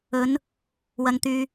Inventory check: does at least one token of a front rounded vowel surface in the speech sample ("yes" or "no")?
yes